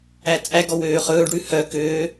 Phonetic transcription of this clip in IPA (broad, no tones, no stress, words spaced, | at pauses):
æt͡sʼæɡɔ wøːχɵːɖɽʉ hœkøː